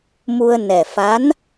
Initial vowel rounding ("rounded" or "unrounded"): rounded